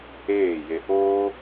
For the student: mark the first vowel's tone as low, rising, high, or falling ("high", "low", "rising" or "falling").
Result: falling